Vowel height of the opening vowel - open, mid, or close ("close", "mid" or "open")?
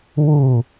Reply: close